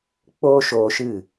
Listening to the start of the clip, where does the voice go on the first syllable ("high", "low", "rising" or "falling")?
high